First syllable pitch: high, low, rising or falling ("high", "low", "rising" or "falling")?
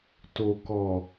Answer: low